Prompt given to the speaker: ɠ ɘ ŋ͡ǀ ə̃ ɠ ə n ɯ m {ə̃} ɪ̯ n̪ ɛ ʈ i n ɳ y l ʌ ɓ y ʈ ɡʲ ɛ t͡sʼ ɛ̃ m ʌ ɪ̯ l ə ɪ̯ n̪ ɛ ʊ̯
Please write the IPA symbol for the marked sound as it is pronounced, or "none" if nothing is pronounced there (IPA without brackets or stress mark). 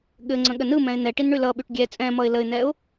ɛ̃